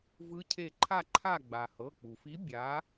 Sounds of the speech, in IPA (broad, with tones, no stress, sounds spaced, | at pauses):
v ɯ˨˥ cʰ e˧˩ ǃʰ a˧˩ ǃʰ a˧˩ ɡ͡b a˩ h ɤ˩˧˩ k͡p u˩ f i˨˥ bʲ a˨˥